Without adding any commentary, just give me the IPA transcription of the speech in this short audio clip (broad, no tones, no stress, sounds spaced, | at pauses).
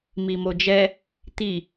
m i m o d͡ʒ ɛ | t̪ i